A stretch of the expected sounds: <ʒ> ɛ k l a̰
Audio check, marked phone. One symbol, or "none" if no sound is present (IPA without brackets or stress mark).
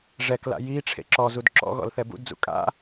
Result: ʐ